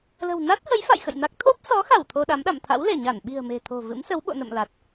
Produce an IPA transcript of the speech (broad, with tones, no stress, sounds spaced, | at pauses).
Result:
l ə̤˨˩ w n a˦˥ t̚ h ə˨˦ j f a̰˧˨ j x ə̰˧˨ j n a˦˥ k̚ t̪ʰ o˦˥ p̚ s ɔ˨˦ x a˧˩ w t̪ʰ o˧ ɗ a˨˦ m ɗ a̰˧˨ m t̪ʰ a̰˧˥ w l e˧˩ ɲ a˧˩ n ɓ i̤˨˩ ə̯ m e̤˨˩ t̪ʰ o̤˨˩ v ɨ̰˧˥ m s ə˨˦ w ɓ o̰˧˨ n ə̰˧˨ m l a˨˩ t̚